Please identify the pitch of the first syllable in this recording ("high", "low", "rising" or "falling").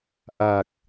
low